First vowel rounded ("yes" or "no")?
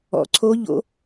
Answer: yes